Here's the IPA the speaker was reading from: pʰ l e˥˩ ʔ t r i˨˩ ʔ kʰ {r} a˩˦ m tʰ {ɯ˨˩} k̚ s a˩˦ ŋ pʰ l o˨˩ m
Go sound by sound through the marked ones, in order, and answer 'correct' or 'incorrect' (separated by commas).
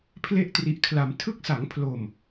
incorrect, incorrect